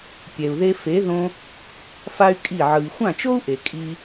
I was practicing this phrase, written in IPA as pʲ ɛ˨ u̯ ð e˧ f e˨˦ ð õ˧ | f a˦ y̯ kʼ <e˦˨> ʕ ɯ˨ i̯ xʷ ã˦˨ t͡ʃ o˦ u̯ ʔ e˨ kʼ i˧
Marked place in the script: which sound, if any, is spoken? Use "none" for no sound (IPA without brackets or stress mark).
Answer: i˦˨